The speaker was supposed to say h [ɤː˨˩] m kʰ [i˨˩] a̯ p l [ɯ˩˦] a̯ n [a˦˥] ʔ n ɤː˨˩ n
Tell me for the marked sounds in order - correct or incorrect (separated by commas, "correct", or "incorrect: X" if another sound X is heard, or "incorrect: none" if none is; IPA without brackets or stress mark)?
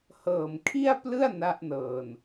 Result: correct, incorrect: i˥˩, incorrect: ɯ˥˩, correct